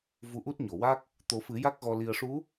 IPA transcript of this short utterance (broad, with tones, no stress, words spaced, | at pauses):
vu˧ʔu˦˥t̚ɲo˨˩˨wa˦˥k̚ | t̪o˨˩˦fɨ˨˩˦ ja˦˥k̚ɣɔ˧ li˨˩ə̯ʂu˧˥